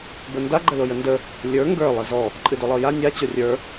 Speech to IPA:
b ə n d a ɡ͡ǃ ə l o j ə n d ə | lʲ ə˞ ŋ ɡ ə˞ lˠ ə z ɔ | ǃʼ ɨ d o lˠ ɤ j a nʲ a t͡ɕ o rʲ ə˞

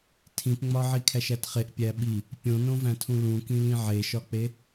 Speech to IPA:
tʰ ĩ p ŋ͡m ɒ ʕ i kʰ æ ʃ æ t χ e ʔ pʲ æ ɓ i | pʲ õ n õ v æ̃ tʰ ũ l ũ k ĩ l ĩ ʕ e ʃ ɒ k͡p e

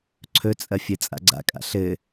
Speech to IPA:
ǀʰ ɵ t͡sʼ ɐ fʲ ɘ t͡sʼ a̰ ɡ͡ǀ a̰ kʼ a̰ ɬ ɘ

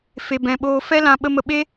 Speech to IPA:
f e˧ b ɛ̃˧ ɓ oː˦ f ɛ˦ l ã˧ ɓ ə˦ m ə˧ ɓ e˦

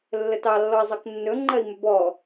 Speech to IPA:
lː ə t ɑ lː ɔ i̯ zˤ ɜ k nː ɵ ŋ͡ǃ ɜ i̯ m ɵ b ɔ

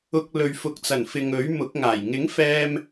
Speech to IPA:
ʊ˧ k̚ l ɵ˨ ɥ f ʊ˨ k̚ t͡s ɐ˨˩ n f ɪ˨ ŋ ɵ˨˥ ɥ m ʊ˨˥ k̚ ŋ aː˨˩ j ŋ ɪ˨˥ ŋ f ɛː˧ m

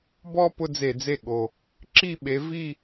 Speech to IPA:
b ɔ˥ p ʊ˥ d͡z e˧˩˧ d͡z e˥˩ ɠ o˨˩ | ǁ i˥˧ ɓ e˨˦ v i˥˧

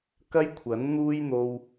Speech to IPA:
k ɐ˥ j kʷʰ ɐ˨˥ n n̪ uː˥ j n̪ o˧ w

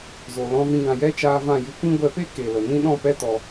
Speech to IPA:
z o˨ l ɔ̃˧ v ĩ˧ ɡ ã˨ j ɛ˦ t͡ʃ aː˧ v ã˦˨ j ɨ˧ kʷ ĩ˦ ɡʷ ɛ˧ p e˦ k e˨ l ə˨ n ĩ˦ ɗ ɔ̃˦˨ p ɛ˦ t ɔ˧

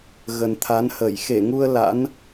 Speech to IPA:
ɣ ə˨˩ n t̪ʰ a˨˦ n h əː˧˩ j x e˧˩ ŋ u˧ ə̯ l a̰˧˥ n

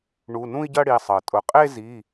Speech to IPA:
ɳ u˩˧˩ n ũ˥˧ i̯ ɟ ɐ˥˧ ɽ i˩˧˩ sˤ ɤ˩ tʼ ʊ˩ qʼ e˥˧ z i˩˧˩

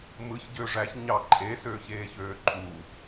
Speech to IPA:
m ɯ ç ɟ ø ʐ æ ç ɲ ɑ ǃʼ e s øː ç eː ç øː ǃʼ u

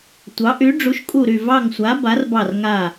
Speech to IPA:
tʷ ɑ˨˥ ʔ y˨˥ ɖ͡ʐ u˨˥ ʃ kʼ u˦˨ ɾ y˦˨ v ɑ˦˨ ŋ sʷ a˨˥ b a˨˥ r b ɑ˦˨ r ŋ a˦˨

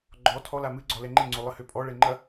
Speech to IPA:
ɡ͡ǃ ɔ tʰ ɔ l a m ɨ ɡ͡ǀ ɔ l ɛ ŋ͡ǃ e ŋ͡ǀ o lˠ ɨ h ø pʼ ɔ ɭ ɛ ŋ͡ǃ ɐ

